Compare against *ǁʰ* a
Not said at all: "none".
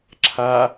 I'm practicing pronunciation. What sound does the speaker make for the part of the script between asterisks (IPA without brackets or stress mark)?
ǁʰ